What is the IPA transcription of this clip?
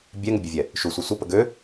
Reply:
bʲ ɛ ŋ ə bʲ e vʲ ɛ | ʃ u sʷ e sʷ ə p ə ɡ ø

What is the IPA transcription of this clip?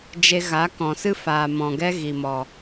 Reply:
d͡ʒ e˧ ɣ a˨˦ k ɔ̃˨ s ɨ˦ f aː˨ m ɔ̃˨ ɡ ɛ˧ ɣ i˨ m ɔ˨

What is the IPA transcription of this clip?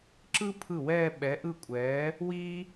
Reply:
ǁ ɯ˥ pʰ ɯ˥˩ w ɛː˥˧ ɓ ɛ˨˥ ʔ ɯ˥˩ kʷʼ ɛː˨˥ | w iː˥

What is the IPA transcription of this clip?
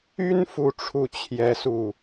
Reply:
y˥ n f u˥˧ ʈ͡ʂʰ u˥˩ t͡ɕʰ j ɛ˥ s u˥˩

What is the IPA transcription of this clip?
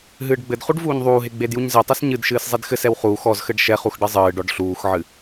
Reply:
ɦ ɨː ɖ ɡ͡b ɘ d χ u ɖ v uː ɲ ðˤ uː ɦ e ɡ͡b e d j u ɲ z e tˤ ɛ s ɲ ɨ d ʃ ɨː s zˤ e d x ɘ s ɛ w χ uː x ɔ z x ɘ ɖ ʃ ɛ χ u x ɖ ɘ zˤ ɨː ɖ ɔ ɖ ɬ uː x ʕ ɨ

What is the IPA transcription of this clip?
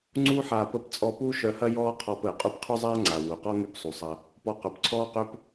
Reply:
ŋ͡ǀ uː˦ ħ aː˧ p ə˦˨ p t͡sʼ ɔ˧ p uː˦ ʃ œ˧ h ɐ˦ j ɔː˦ qʰ ɔ˧ p əː˨ qʼ u˧ p qʰ y˦ zˤ aː˦ ŋ͡ǀ a˨ w u˨ q ɔ˦ ŋ y˦ p sˤ u˨ sˤ ɐ˧ | p ɔ˧ q œ˨ p ǀʰ ɔː˦ q ø˦ p

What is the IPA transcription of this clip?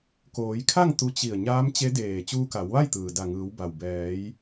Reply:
k oː˩˧ j kʰ a˥˨ ŋ t̪ u˧ t͡ɕ i˧˩ ə̯ ɲ aː˧˥ m t͡ɕ e˧˥ d eː˧˩ t͡ɕ uː˧ k a˩˧ w ʋ a˥˨ j t̪ ɯː˩ d a˧˩ ŋ ɯː˩˧ w b a˩ w b ɛː˩˧ j

